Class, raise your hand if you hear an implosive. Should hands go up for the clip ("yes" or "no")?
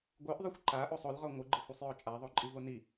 no